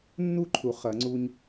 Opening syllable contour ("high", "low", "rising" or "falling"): high